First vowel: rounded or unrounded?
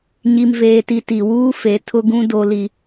unrounded